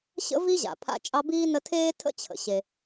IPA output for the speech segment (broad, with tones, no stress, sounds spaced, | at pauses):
ɕ ə̰˥ v i˥ ʑ a̰˩ pʰ a̰˦ t͡ʃʼ ɑ˦ b iː˥ n ə˦ tʰ eː˥ tʰ ə̰˥ t͡ɕʰ ə̰˩ ɕ e˨